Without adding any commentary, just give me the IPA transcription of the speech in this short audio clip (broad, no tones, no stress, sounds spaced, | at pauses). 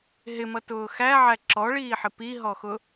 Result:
ɦ ɪ m ʌ t ʊː x æ ʕ æ ǁ ɔ ɭ iː ħ ɪ p i ɦ ɔ x ʊ